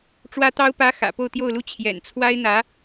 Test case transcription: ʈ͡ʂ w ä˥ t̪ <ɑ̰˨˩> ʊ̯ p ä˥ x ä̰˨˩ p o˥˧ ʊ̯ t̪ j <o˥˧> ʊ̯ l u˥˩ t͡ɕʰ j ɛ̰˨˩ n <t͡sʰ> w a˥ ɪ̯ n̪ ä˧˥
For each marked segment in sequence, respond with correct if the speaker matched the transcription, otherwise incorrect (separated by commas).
incorrect, correct, correct